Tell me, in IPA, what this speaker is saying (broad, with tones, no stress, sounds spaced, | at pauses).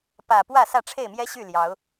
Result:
p ä˨˩ p w ä˥˨ s ä˥˨ ʈ͡ʂʰ e˥˨ ɪ̯ m j ɛ˦ ɕ y˥˨ l j ɑ˨˦ ʊ̯